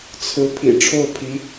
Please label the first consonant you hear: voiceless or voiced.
voiceless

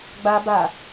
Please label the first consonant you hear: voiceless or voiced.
voiced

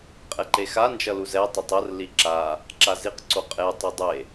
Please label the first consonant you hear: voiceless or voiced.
voiceless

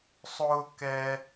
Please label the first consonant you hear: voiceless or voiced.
voiceless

